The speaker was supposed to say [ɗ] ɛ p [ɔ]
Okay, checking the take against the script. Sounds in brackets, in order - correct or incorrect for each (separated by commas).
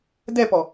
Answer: incorrect, correct